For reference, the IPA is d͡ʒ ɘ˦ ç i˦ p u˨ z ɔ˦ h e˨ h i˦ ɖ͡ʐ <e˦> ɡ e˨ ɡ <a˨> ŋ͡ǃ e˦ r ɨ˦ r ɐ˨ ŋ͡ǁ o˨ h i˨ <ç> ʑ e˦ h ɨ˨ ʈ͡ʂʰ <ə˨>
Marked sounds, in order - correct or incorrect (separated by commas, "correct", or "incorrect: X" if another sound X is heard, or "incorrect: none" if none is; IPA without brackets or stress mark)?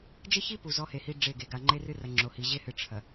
incorrect: e˦˨, correct, incorrect: none, incorrect: ɐ˨